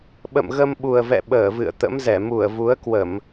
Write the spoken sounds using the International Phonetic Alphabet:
ɓə̰˧˨mɣə˧mɓu˨˩ə̯vɛ̰˧˨ ɓəː˧˩vɨ̰˧˨ə̯ t̪ə̰˧˥mzɛ˧˩ mu˧˩ə̯vu˨˦ə̯kwə˧˩˨m

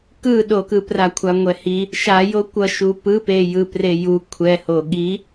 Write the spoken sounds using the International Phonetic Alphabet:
kɯɗokɯ prakʷʰaŋʷɛhi | ʃajo kʷʌʃu pɯpe jɯpreju kʷʰɛho ɠi

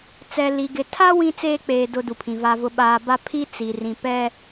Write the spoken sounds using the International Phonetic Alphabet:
t͡sɛ˨li˨ɡɪ˨ tʰa˦ wĩ˦t͡seː˦k͡peː˨ dʊ˨ du˨pʰĩ˨va˦vʊ˦ ɓaː˨ba˦pʰi˦ t͡si˨rĩ˨ pɛ˨

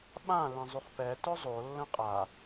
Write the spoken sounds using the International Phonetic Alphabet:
ɓã lɛ̃zˤyχpɛ tœzˤo lːə̃qʼa

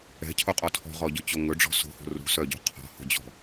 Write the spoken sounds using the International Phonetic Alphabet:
ɛ̤cʰoqʼɔ tʰɔ̤ʁɔɟɵt͡ɕo ŋɵɖ͡ʐɔ̤ so̤ho̤ rṳsœɟo̤ qʰɔ̤ho̤d͡ʑɔ̤

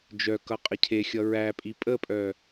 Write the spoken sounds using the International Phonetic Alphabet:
d͡ʒœkʌ qʼəcʰexʲʌ ɹæpʼi pʼəpʼœ

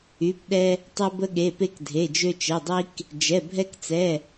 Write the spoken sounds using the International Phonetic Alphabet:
y˩˧˩pɗɛ˧ | tˤɛ˧bə˧ɠe˩˧˩pe˧k dʱe˩˧˩d͡ʒø˧t͡ʃɛ˩˧˩dˤi˧k | d͡ʒɛ˩˧˩bʱɛ˧kt͡sɛ˩˧˩

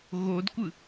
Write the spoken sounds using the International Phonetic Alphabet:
ɣodkʷɯ

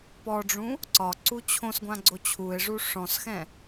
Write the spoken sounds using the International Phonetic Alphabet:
pɔɖ͡ʐũ | ǀɒǀu t͡ɕʰõsɡʷã ɡ͡ǀot͡ɕʰue̯ʐu ʂɔ̃sxɛ̃

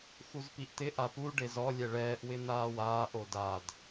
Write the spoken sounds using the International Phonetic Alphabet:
xuzpiʔt̪ɪ ʔapu ɖezɔ lʲɛɭɛːʔ wɪn̪aːwaːʔ odad

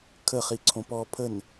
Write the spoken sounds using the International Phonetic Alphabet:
kʰəχiǀʰõ pɔ pʰən

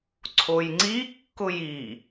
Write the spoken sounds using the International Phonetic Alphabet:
ǀʰojŋ͡ǀikːʊj i

